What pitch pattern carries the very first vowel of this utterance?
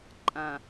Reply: low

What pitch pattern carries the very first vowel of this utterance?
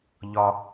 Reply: low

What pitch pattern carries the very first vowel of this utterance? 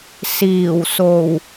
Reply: low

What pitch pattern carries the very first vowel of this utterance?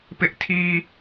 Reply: high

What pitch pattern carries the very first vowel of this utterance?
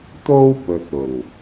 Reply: high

